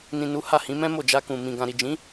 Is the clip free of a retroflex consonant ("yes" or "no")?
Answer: yes